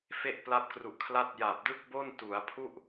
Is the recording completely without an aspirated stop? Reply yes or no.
no